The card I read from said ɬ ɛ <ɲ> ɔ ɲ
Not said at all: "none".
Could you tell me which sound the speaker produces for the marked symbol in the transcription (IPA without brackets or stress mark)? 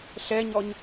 ɲ